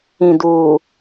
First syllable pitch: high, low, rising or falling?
low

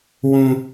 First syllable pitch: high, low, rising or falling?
high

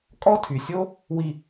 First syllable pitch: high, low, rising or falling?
high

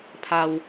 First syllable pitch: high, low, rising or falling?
low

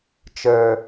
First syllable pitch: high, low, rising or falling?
low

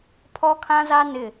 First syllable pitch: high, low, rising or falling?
high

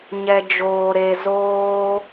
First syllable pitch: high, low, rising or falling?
low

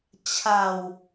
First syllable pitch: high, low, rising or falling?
low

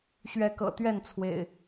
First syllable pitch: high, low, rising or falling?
rising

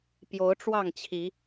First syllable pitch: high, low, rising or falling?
rising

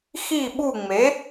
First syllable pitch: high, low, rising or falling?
falling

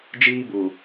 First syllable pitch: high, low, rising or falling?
high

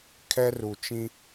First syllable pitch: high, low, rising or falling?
high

